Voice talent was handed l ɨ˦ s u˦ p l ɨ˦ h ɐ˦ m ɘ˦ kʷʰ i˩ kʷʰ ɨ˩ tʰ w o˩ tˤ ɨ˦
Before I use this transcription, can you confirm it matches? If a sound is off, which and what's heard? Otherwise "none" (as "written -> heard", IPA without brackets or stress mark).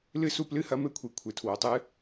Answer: none